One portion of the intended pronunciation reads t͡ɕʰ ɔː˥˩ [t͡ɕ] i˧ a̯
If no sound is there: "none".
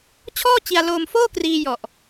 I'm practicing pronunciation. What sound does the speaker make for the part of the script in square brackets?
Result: t͡ɕ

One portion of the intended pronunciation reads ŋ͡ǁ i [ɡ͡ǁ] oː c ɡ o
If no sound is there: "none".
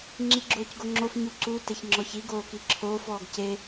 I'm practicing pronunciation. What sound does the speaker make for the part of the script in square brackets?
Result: ɡ͡ǁ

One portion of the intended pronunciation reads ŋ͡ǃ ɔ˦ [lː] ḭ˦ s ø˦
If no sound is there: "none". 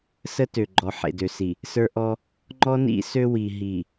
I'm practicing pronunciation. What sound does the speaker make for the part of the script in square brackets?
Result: n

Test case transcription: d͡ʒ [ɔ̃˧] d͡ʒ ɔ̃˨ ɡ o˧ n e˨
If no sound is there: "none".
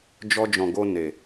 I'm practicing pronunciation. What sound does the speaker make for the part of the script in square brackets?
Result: ɔ˧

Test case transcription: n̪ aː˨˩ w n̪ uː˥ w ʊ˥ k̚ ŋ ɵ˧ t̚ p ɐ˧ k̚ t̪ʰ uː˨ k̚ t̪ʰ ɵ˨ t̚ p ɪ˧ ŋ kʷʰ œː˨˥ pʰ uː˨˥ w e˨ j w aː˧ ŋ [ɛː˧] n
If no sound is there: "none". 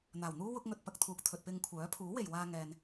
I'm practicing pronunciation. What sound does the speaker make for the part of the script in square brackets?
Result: ɛː˧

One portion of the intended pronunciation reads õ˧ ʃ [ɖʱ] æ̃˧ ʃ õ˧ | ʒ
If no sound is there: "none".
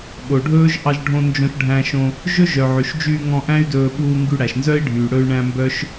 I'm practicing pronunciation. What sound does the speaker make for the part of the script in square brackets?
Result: ɖʱ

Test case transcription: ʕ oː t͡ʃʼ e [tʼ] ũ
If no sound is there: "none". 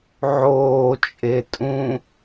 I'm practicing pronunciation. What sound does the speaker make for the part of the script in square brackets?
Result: tʼ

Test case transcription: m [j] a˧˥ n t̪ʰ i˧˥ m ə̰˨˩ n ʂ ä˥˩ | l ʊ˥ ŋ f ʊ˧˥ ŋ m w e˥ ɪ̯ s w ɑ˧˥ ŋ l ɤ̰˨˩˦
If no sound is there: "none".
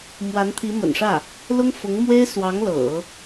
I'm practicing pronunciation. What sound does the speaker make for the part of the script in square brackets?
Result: w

